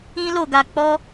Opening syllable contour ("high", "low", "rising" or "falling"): high